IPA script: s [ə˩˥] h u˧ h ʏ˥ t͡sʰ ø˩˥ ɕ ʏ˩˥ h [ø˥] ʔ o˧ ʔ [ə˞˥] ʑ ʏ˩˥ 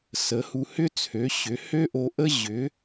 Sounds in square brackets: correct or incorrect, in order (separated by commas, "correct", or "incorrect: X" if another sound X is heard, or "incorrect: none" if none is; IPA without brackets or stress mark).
correct, correct, incorrect: ə˥